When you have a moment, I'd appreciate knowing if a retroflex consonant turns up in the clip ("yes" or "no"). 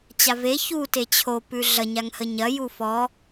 no